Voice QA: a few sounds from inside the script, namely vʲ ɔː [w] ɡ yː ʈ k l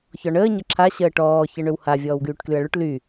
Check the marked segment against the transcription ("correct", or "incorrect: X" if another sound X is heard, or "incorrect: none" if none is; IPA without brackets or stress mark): correct